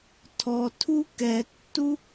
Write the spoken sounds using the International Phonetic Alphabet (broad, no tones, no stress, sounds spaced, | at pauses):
tʰ ɔ tʰ u k ɛ tː u